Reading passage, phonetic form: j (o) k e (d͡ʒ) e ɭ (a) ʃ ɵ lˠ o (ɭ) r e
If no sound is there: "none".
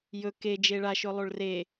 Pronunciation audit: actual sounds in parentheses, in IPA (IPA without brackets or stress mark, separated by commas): ɵ, d͡ʒ, a, ɭ